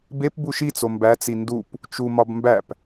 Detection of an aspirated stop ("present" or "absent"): absent